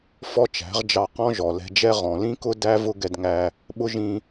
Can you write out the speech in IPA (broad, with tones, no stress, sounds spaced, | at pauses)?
f ɔ˦ t͡ʃ æ̤˨˦ ʁ d͡ʒ ɑ˧ q ɔ̃˦ ʒ ɔ˨ l ɛ̤˧ d͡ʒ ɛ˦ ʁ ɔ̃˨ l ĩ˦ k ʊ˦ d æ˦ v ʊ˦ ɡ ɛ˧ d ŋ æ˧ | ɓ ʊ˦ ʒ ĩ˧